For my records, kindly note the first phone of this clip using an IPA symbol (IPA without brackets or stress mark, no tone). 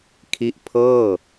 kʰ